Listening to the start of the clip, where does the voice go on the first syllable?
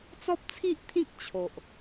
high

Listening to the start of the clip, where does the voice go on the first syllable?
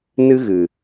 high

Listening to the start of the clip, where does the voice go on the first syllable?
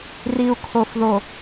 low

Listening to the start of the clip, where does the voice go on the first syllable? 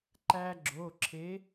high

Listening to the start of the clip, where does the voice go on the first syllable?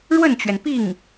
falling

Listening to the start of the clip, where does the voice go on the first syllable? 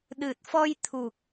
low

